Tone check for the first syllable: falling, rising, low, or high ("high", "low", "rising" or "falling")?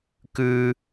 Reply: high